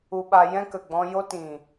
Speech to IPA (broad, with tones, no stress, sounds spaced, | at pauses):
u˧ ɓ a˧ j ɛ̃˦ k ə˨ ɡ͡b ɔ̃˧ j o˦ t ĩ˨